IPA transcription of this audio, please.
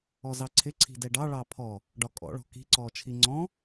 ɔzɑǀʰɪ ǀʰi̤dɛɖɑ ɭɑpʰɔ | ɖɒkʼɔ̰ɭɔ̤ ki̤ǀɔː t͡ʃʰiŋ͡ǀɔ̃

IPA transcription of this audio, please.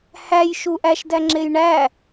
hæj ʃuʔæʃ dæŋ͡ǁejɳæ

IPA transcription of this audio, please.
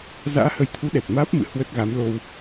za̰ː˧˥hə˨˦jt̪ʰu˨˦ ɗɛ˨˩t̚maː˦˥p̚mɨ̰˧˨ hwə˦˥t̚ɣa˨˦mlo˧w

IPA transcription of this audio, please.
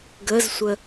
ɡəzsʷə

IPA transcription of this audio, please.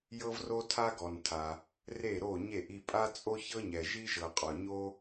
jɤ˥vro˥ tʰa˥ɡɔ˨ntʰa˨ | re˥˨ɾo˥˨ɲe˥˨ʔ i˥˨pʼa˥ t͡sʼo˥çɤ˥ɲɛ˨ ʒi˥ʒɤ˨qʼɔ˨ ɲo˥

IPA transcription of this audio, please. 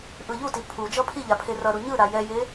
ʔɯʎuti pʰu d͡ʒʌpʰiʎa pʰerʌɾu ɲɯ ɾajɛje

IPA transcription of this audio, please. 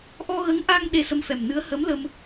ʔɔ˧ɣə˧˥ŋʔa˧ŋ ɗe˧sə˧mfɛ˨˩mnɨ˧˥ə̯ hə˧˥m lə˧m

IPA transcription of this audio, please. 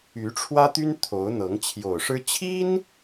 y˧˥ʈ͡ʂʰwä˥t̪y˥n t̪ʰo˧˥ʊ̯n̪ɤ˧˥ŋ t͡ɕʰjo˨˩ʊ̯ʂɻ̩˥ t͡ɕʰi˥n

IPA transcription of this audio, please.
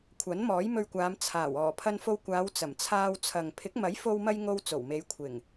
kʷʰɐ˨˥nmɔː˨˥jmɵ˧ɥkʷaː˨˧m t͡sʰaː˨˩w ɔː˨˩pʰɐ˧nfo˧wkʷaː˨˧w t͡sɐ˨˩mt͡sʰaː˧wt͡sʰɐ˨ŋ pʰɪ˨˥k̚mɐ˨˥jfo˧wmɐ˧j ŋo˧wt͡so˨˩wme˨˧j kʷʰɪ˨˩ŋ

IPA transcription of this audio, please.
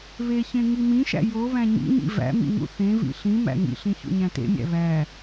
βeçẽ ŋimĩʃæ̰ joβæ̃ ɲḭɲḭ væ̰mḭ ŋṵθẽvḭ ɬĩ mæ̰ŋḭɬĩ çṵɲæ̃tḛmʲæ̰ βæ

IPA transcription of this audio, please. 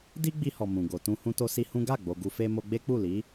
di˦ɡ͡bi˧hɔ˨ mũ˨ɡo˨ tũ˧ hũ˧to˧si˧ hũ˦ ɡa˦˨ ɡ͡bo˧ ɡu˧ fe˧ mo˧ɡ͡be˦k͡pu˦˨li˨˦

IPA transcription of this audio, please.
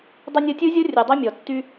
dˤə˧nʲɤ˧tʲɯ˦zʲɤ˦ rʲɯ˨dˤy˦mʲɔ˨tːy˦

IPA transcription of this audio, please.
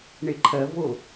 ɳeǃʰɜ vo

